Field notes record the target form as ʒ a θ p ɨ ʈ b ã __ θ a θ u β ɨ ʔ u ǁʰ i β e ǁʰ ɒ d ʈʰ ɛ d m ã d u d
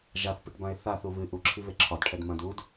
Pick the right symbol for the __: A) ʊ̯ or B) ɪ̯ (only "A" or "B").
B